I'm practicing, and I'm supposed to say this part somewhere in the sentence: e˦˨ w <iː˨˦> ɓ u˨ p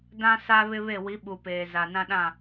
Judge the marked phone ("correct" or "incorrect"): incorrect